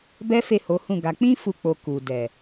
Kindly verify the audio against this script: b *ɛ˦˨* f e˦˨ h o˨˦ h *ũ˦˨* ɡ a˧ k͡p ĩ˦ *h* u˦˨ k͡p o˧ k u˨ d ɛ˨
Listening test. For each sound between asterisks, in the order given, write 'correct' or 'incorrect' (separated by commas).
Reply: incorrect, correct, incorrect